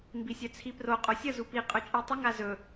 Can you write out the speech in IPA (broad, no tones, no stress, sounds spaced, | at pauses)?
m b i sʲ œ t͡sʰ i p r o qʼ o sʲ ə z u p i qʼ ɵ t͡ʃʼ i tˤ ə ŋ a z ɵ